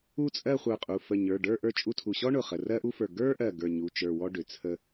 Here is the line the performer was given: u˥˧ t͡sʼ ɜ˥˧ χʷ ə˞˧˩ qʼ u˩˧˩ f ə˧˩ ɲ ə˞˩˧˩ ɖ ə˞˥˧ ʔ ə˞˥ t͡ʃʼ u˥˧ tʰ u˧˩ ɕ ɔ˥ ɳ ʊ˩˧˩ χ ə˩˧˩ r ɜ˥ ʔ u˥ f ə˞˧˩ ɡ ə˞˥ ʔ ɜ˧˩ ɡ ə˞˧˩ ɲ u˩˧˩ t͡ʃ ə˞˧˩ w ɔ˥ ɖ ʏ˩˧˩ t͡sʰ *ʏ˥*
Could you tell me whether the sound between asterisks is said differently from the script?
yes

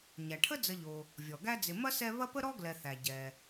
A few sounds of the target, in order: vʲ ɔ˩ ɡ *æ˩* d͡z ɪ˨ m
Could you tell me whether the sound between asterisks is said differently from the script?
yes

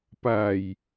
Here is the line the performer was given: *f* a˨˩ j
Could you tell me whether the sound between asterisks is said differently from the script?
yes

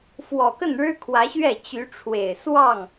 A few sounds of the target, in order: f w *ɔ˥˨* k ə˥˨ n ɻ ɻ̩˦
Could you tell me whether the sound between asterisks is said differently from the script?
yes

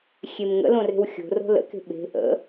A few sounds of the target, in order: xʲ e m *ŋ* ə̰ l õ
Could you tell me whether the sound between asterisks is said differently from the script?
no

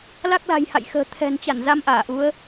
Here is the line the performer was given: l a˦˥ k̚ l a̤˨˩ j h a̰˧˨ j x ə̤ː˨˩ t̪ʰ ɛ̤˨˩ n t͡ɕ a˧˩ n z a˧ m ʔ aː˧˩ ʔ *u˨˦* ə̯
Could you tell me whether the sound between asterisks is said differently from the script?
no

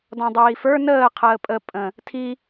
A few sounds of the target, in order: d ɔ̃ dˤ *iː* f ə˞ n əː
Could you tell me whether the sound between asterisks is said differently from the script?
no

